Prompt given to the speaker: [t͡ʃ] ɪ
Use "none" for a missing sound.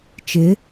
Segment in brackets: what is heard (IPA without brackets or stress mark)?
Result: t͡ʃ